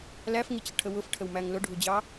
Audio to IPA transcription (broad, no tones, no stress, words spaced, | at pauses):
læfŋit͡ɕəʈʰə wʊfʈʰəwmæŋ lʊɖʱud͡ʑɑ